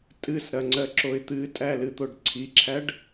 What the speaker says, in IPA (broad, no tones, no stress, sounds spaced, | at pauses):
tʼ ɨ s ɾ ɐ ŋ͡ǀ ɜ ǁ o ɪ̯ t̪ ɨ tʼ æ l ɨ t̪ o ɖ ǀʰ i ǁʰ æ ɖ